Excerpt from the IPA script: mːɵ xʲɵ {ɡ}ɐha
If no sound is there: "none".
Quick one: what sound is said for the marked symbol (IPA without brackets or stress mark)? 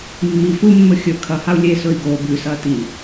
kʰ